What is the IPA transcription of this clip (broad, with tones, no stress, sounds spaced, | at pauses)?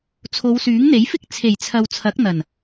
t͡sʰ o˨˧ w s yː˨˥ ŋ n̪ e˨˥ j f ɪ˥ k̚ t͡sʰ e˨˩ j t͡sʰ ɐ˨ w t͡sʰ ɐ˨˥ k̚ n̪ ɐ˨˩ n